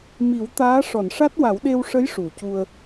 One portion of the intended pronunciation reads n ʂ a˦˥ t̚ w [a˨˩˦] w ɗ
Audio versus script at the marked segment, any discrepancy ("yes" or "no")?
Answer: no